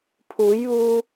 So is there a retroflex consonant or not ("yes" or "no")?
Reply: no